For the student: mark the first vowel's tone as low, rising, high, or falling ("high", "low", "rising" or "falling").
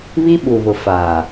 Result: high